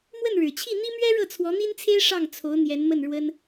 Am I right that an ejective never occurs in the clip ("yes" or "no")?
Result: yes